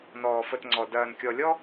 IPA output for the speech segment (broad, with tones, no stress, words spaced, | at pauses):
nɔː˨fə˨t ŋ͡ǀɔ˨ dɐː˨nkʲɔ˨ lʲɔ˦